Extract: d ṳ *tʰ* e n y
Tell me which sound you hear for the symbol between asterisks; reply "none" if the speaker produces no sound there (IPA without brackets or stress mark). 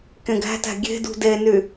d